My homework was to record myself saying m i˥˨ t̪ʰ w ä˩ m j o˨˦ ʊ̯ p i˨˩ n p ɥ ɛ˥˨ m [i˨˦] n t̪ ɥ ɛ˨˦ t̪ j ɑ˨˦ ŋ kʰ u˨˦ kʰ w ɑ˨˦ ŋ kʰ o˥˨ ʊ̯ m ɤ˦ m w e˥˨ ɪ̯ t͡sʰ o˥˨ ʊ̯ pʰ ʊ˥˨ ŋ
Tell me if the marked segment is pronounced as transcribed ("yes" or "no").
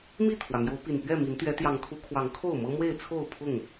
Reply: yes